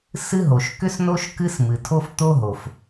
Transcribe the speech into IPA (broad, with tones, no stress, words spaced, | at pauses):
sɨ˥ɦo˩ʃ kʏ˥sno˥ʃ kɨ˥smɨ˩tʰo˥f t̪o˥ɦo˩f